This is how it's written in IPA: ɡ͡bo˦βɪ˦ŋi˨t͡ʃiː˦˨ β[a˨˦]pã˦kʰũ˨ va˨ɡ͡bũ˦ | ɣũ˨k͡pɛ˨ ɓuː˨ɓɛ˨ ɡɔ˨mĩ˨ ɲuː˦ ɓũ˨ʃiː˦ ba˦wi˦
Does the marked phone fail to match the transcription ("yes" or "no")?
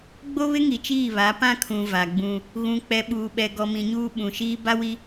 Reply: no